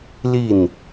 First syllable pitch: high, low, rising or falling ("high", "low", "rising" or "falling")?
falling